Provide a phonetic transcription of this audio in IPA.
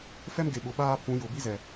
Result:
f ɛ˦ m ɡ e˨ ɓ ʊ˨ ɓ aː˦ pʰ ũ˨˦ j ʊ˨ b i˦ z ɛ˨

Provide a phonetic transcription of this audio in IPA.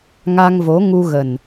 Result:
ŋ a˧ ŋ v o˨˦ ŋ u˧ ɣ ə˨˩ n

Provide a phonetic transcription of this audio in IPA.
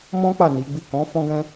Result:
m ɔ̃˦ k͡p a˦˨ n i˨˦ ɡ͡b i˦˨ k ɔ̃˨˦ f ɔ̃˦ ɡ ɛ̃˦

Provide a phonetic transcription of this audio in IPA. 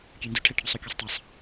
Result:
kʲ ø n d y ʈʰ ɛ ʈʰ u sˤ u kʲ œ sˤ tˤ œ sˤ

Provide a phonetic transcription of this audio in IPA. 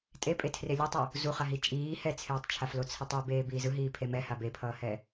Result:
tʼ e pʼ e tʰ r e lʲ ʌ tˤ ɯ | z u χ a ɦ i t͡ʃʼ iː h ɛ t͡sʰ eː tˤ t͡ʃʰ a f l o t͡sʰ i tˤ i b eː b iː z ɯ ɦ iː pʰ e m ɛ h a b e pʰ ʌː h ɛ

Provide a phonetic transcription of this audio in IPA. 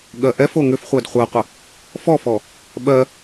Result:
ɠ ɜ ʔ ɛ f o ŋ ʏ f χʷ ɜ d χʷ ɜ qʷ ə | f ɔ f ɔ | ɓ ɜ

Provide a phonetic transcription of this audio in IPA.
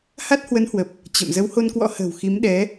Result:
h a˦˥ t̚ h w ə˨˦ n h w ə˨˩ p̚ | t͡ɕ ə̰˧˨ m z ə˨˦ w h o˧ n k w ɔ̰˧˥ h ə̤ː˨˩ w x i˨˦ m ɗ ɛ˨˦

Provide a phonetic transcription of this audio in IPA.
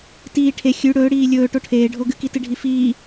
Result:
t iː ʈʰ e xʲ ʉ ɽ ɵː ɽ iː lʲ ɵː ʈ o ʈʰ eː ɖʱ o ɡ ɨ k i t ɨ ɖʱ i f iː

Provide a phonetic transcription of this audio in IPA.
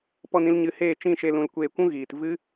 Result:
p ɔ˧ n ĩ˧ l ɲ ɨ˧ h eː˦˨ t͡ʃ ĩ˦˨ ʃ e˧ l ũ˨ l kʷ eː˧ kʷ ũ˦ ɣ iː˨ t v ɨ˦

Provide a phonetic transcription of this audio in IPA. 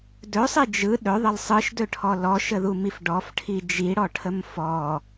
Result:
d ɵ sˤ i d͡ʒ ɯ ɗ ɵ ðˤ ə l sˤ ɯ ʃ d ɵ ʈʰ ɔ l ɔ ʃ ə ð u m i f ɖ ɔ f ʈʰ i d͡ʒ i ɽ ɔ ʈʰ ə m f ɔ

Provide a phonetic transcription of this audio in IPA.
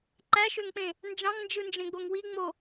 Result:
ǃ æ ʃ ø ŋ k͡p ẽ | n d͡ʒ ɑ̃ ŋ n d͡ʒ ɯ n d͡ʒ ẽ ɡ͡b o ŋ w i ŋ͡m o

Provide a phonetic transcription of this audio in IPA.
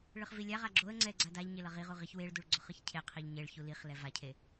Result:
ɭ ɯ χ v i lʲ a ʁ a ɡ͡ǁ o ə̯ ŋ͡ǀ ɛ ɡ͡ǀ a d a ʎ ɲ e l ʌ ʁ i ʁ u ʁ i ç w e ɭ d u ɭ ɡ͡ǀ o χ ɯ ç cʰ e qʰ i ʎ ɲ e ɭ ç u l i χ l ɛ v a cʰ e

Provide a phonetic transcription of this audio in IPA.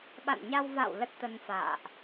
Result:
ɓ a̰˧˨ n ɲ a˧ w v a̰˧˨ w l ə˦˥ t̚ t̪ ə˧ n f a̰ː˧˨ ʔ

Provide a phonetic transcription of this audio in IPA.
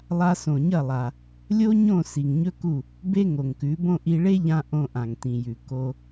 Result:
lˠ a˧ s õ˩ ɲ ɐ˥˩ lˠ a˩ | lʲ o˥ ɲ õ˥˩ s i˩ ŋ ɲ ɵ˥ k u˥˩ | b e˥ ŋ o˩ ŋ k ʉ˩˥ b õ˥ ʔ i˧ ɭ e˥ ʎ ã˧ ʔ õ˧ ʔ ã˩ ŋ t ĩ˩ j ʉ˩ k o˧

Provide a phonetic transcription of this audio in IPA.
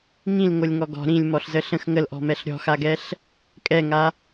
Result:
ŋ ĩ l ŋ o lʲ ŋ ɔ ɡ ɔ̤ ɾ ĩ lʲ m ɔ ɬ z ə ɬ ə̃ x ŋ ə l ʔ ɔ̤ m ɛ ɬ ɾʲ ɔ̤ x a ɡ ɛ ɬ | kʼ ɛ ŋ a

